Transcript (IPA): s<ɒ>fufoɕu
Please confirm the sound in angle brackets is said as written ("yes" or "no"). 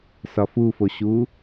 yes